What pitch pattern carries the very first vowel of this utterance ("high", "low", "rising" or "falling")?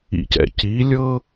low